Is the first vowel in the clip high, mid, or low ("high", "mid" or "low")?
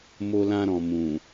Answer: mid